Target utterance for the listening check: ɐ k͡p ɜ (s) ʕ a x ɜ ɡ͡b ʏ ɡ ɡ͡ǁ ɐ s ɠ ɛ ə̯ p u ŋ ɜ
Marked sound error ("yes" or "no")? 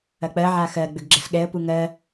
yes